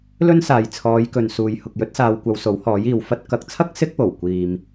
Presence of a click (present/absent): absent